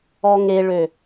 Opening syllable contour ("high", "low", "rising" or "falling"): low